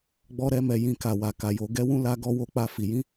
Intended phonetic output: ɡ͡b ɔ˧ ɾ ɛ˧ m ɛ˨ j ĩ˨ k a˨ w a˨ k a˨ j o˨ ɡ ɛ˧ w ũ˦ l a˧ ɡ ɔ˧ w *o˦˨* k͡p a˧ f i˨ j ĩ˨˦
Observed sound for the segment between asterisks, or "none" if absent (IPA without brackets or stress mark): o˧